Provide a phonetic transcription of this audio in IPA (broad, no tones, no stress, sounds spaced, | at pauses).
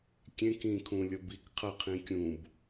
kʲ ẽ k ĩ kʰ ũ lʲ ʌ b i k qʰ ʌ qʰ ĩ kʲ ũ b